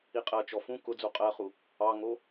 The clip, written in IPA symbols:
iqʼɜt͡ʃɔ fũ kʊd͡zu qʼɜχu | ɑŋo

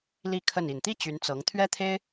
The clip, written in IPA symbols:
li˥˧kʰə˥˩n i˨˩nt̪i˥ t͡ɕy˧˥nt͡sɤ˧˥ŋ t̪ʰɥɛ˥t̪ʰe˥ɪ̯

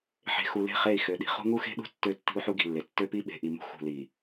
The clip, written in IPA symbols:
ħe̤˨ xu˨le̤˦˨ χe˦˨i̯xø˨ɗi̤˨ χṳ˦ŋu˦xe̤˦ɗṳ˦ tːø˦ tːi̤˦u̯ħu˦ɡi̤˨lːe˨ tːø˦pi˦ɓe̤˨ ʔi˨mṳ˦ xṳ˨li˨

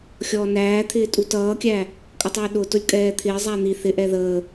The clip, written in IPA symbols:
xʲɔːnæːt̪ʰɪː tʼutʌːkʲæ | kʼʌtˤɪːɗʊtʊlʲ kʼɛːt̪ʰɪːzˤæ n̪i θɪʔɛ ðəː

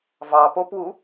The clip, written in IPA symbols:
vɑpopwu

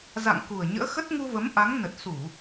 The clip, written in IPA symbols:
za̰˧˨ŋ ku˨˩ə̯ɲə̰ː˧˥xə˦˥t̚ ŋu˧və˨˦mʔa˨˦ŋ nə˨˩t̚su˧˩˨

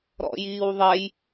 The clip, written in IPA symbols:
ɾɔ̰jiːwðˤɛj

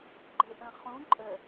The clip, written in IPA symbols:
ɡ͡ǃɘʔə̃χũ ǃʼə

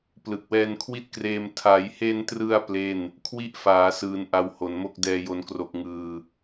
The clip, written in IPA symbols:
plɯ˨˩k̚wɛː˧nkʰwi˥˩t̚kreː˧m tʰa˩˦jhe˧ntrɯ˧a̯ ple˥˩n | kʰwi˥˩ʔfaː˩˦sɯː˩˦n ʔa˨˩w ho˨˩nmo˥˩k̚ dɛː˨˩jo˩˦nkro˨˩k̚ ŋɯː˨˩

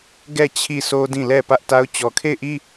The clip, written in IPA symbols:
ɡɛ˦˨ t͡ɕʰi˦˨sʰo˦dĩ˦˨lɛ˦˨ pä˦ʔta˦ʊ̯ t͡ɕɔ˨kʰe˦˨ɪ̯ʔi˦

